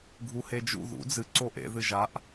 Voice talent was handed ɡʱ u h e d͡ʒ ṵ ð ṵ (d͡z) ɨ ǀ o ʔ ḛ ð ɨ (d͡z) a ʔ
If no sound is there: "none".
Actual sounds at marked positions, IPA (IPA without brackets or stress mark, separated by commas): d͡z, ʒ